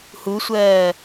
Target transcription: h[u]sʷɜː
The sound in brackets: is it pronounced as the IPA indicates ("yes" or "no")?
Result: yes